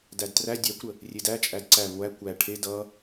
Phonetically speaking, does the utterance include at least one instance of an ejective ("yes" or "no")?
yes